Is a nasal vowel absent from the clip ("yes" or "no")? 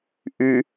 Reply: yes